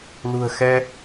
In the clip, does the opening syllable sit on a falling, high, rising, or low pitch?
low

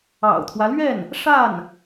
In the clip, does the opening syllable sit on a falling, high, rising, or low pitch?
low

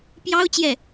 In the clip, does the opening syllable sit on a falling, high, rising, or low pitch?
high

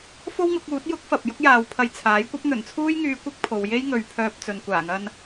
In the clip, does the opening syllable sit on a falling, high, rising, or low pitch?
high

